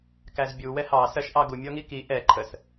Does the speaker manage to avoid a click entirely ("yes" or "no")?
no